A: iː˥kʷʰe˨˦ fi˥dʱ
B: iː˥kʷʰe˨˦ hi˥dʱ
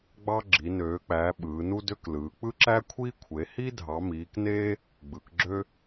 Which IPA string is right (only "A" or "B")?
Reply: B